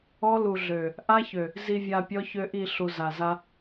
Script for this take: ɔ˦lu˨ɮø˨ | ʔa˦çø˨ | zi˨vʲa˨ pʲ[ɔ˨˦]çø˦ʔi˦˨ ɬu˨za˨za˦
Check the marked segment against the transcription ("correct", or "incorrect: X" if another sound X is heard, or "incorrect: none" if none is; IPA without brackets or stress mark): incorrect: ɔ˦